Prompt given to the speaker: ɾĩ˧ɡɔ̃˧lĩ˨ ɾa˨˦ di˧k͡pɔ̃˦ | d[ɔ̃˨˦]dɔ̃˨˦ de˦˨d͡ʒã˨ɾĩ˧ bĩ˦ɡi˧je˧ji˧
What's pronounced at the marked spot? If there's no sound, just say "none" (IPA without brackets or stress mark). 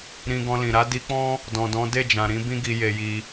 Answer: ɔ̃˨